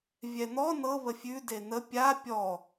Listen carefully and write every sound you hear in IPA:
vʲ ɛ n̪ ɔ n ɤ β ə fʲ ʉ d e n̪ ə pʲ a pʲ ɔ

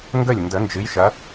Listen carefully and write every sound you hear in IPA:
ŋ ɡ ə˧˩ lʲ n d ə˨˩˦ n d͡ʒ ɨ˨˦ j ʃ ɐ˨˦

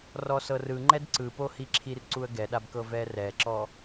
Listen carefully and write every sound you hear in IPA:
r ɔ s ɤ r ɯ ŋ͡ǃ ɛ d ǀ ɯ p o h i ǁʰ i r ǀ u ə̯ ɡ ɛ ɗ a b k ɤ v ɛ r ɛ ǁ ɔ

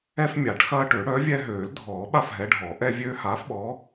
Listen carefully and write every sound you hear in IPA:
ɛ˦ f mʲ a˨˩˦ ʈ x ɐː˦ ʈ ø˨˩˦ ɽ œ˨˥ vʲ ɛ˦ ɦ øː˨˩˦ l dʱ ɔː˨˩˦ ɓ a˦ f ɦ ɛ˨˥ ɖʱ ɔ˨˩˦ ʔ ɛ˦ vʲ øː˦ h aː˨˥ f ɓ ɔː˨˥

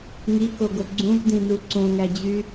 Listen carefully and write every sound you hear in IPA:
ŋ i k o ɡ o ɡ͡ǀ ũ v d ĩ n u ǀ õ ŋ æ d͡ʑ y

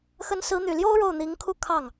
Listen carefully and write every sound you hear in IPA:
x ə˧˥ n s ɹ̩˧˥ n̪ y˨˩ l j o˥ ʊ̯ ɻ o˥˩ ʊ̯ n̪ i˧˥ ŋ kʰ u˥˧ kʰ ɑ˥˩ ŋ

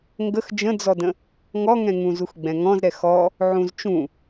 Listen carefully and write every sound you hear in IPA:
ŋ ɡ ə x d͡ʒ ə̃ d͡z ɔ d ə̃ | ŋ ɔ ŋ ɛ̃ ŋ ũ z u x ɡ͡b ɛ̃ ŋ ɔ̃ z ɾ ɛ x ɔ | ʕ ũ z t͡ʃ ũ

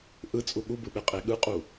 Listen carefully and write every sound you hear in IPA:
ʔ ɯ t͡sʼ u ɠ u b ɯ ɓ e qʼ e ɠ ɯ qʼ u

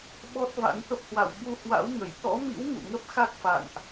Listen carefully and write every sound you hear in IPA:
ɓ ɔ˦˥ t̚ v a̰˧˥ n t̪ ə˦˥ p̚ h w a̰˧˨ w ɓ u˧ h w a̰˧˥ w ŋ ə˧˩ j t̪ ɔ̰˧˥ m ḭ˧˥ w ŋ ṵ˧˨ ŋ ə˦˥ p̚ x a˦˥ k̚ f a̰˧˨ n ʔ

